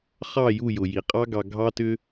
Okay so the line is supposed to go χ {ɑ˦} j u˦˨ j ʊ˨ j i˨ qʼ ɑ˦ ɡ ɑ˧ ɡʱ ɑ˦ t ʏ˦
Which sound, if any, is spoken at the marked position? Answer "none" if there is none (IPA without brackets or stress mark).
ɑ˦˨